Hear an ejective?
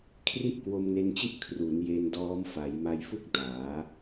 no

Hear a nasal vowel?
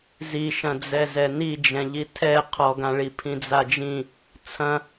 yes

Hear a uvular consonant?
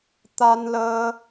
no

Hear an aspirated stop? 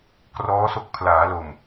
yes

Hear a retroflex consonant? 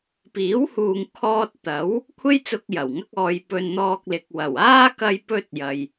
no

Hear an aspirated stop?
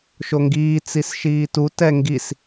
no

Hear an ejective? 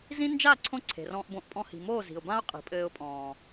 yes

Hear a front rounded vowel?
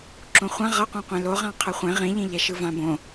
no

